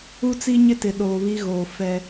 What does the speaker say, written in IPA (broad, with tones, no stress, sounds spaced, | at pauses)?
u˦ t͡s i˦ ɲ ɪ˦ t ɪ˨ ɗ oː˨ β i˦ ɣ oː˨ f ɛ˦